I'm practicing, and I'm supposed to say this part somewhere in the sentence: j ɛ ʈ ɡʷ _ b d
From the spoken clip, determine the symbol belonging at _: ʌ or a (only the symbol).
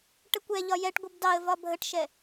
ʌ